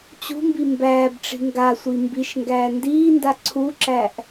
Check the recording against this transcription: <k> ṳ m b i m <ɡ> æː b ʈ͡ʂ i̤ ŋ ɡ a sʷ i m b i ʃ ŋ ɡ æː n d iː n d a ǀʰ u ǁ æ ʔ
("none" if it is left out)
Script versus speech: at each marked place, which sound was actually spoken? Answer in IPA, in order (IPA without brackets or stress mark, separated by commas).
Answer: t͡ɕ, b